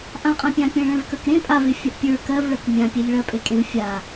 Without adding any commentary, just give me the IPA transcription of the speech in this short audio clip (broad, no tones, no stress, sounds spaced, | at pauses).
ʔ ã qʼ ã pʲ ã pʲ ẽ ɭ ɛ̃ v k ə˞ k ɾ ẽ pʼ a v e fʲ ɜ ʔ pʲ ə˞ k ɜ v ɭ ɜ k mʲ ã pʲ e ʎ ɭ ɜ pʼ e kʼ ẽ v fʲ a